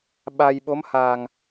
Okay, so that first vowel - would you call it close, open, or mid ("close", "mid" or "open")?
open